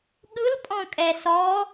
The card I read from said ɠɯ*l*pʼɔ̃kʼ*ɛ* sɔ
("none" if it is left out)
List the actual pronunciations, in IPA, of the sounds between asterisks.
l, ɛ

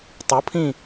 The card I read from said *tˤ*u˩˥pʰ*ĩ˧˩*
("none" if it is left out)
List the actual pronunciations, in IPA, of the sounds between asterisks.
tˤ, ĩ˧˩

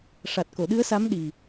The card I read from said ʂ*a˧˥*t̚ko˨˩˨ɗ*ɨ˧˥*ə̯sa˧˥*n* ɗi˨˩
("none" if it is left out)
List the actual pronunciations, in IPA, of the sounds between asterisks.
a˨˩, ɨ˧˥, m

